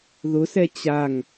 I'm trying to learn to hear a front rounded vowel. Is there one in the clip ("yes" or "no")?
no